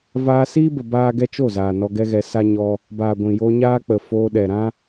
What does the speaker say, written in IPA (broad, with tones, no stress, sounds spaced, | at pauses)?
v aː˧ s iː˦ b ə˨ b aː˦ ɡ ɛ˦ t͡ʃ o˦˨ z aː˨ n ɔ˧ ɡ ɛ˦ ɣ ɛ˧ s a˦ ɲ ɔ˧ | b aː˨ ɡʷ ĩ˨ j o˧ ɲ aː˦ k͡p ə˨ f oː˧ ɗ ɛ˨ ɾ ã˦